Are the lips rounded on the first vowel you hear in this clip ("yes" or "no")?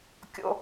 yes